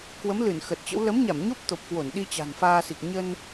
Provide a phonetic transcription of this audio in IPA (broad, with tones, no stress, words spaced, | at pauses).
kwə˨˦m lɨ˧˩nxə˨˩t̚t͡ɕə̰˧˥w lə˨˦mɲa˧˩mɲo˦˥p̚ t̪o˨˩p̚kwo˧˩nɗi˧ t͡ɕa̤˨˩nfaː˧si˨˩k̚ ɲə˧n